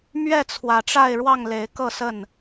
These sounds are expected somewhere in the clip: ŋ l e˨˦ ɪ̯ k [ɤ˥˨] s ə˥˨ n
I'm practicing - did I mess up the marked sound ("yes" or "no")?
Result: no